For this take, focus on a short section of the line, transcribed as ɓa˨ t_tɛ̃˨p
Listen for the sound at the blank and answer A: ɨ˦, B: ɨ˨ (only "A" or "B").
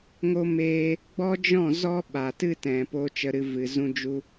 A